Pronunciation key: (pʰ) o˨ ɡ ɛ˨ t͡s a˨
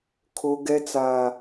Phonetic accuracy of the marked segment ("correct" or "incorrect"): incorrect